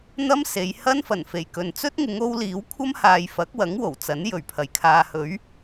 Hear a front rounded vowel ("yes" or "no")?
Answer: no